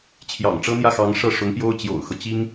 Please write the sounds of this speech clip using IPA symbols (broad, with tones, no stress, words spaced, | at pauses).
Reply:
t͡ɕʰjɑ̰˨˩ŋʈ͡ʂɤ˥n̪jä˥˩xɑ˧˥ŋ ʂɤ˥˩ʂʊ˧˥ŋpjo˥ʊ̯ t͡ɕjo̰˨˩ʊ̯xɤ˦ t͡ɕi˥ŋ